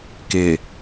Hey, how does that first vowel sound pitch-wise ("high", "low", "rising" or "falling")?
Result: low